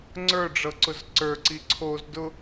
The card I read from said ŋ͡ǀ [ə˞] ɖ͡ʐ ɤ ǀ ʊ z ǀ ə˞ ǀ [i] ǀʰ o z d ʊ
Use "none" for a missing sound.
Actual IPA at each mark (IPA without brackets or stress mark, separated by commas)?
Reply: ə˞, i